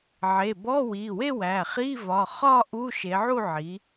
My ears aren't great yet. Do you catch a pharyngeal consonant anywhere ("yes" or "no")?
yes